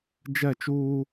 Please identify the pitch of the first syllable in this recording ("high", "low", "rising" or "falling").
falling